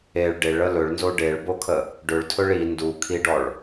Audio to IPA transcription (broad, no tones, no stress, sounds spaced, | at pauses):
e ɭ ɖ e ɭ ə l ɵ ɭ n z o ɖ e ɭ b o kʰ ə | ɖ ɵ ɭ tʰ ɵ ɭ i n d u kʰ i ɖ ɔ ɭ